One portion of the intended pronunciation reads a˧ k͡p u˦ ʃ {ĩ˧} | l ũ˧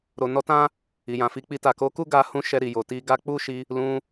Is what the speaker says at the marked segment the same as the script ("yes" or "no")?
no